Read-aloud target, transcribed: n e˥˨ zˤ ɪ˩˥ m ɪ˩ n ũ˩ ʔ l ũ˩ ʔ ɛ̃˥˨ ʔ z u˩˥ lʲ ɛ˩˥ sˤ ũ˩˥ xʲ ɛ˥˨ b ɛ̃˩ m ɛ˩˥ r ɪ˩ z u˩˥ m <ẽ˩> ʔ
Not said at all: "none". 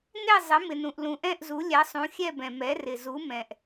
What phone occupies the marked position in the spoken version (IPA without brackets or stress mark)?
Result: ɛ̃˩